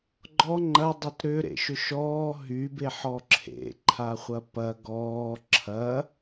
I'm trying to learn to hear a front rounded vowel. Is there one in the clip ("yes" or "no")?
yes